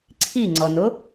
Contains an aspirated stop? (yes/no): yes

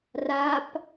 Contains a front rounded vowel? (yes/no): no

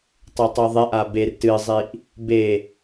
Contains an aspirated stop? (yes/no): no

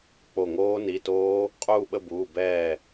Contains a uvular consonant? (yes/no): yes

